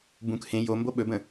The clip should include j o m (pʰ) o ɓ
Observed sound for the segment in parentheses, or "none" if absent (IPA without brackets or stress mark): b